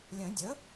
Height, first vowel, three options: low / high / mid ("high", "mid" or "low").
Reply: mid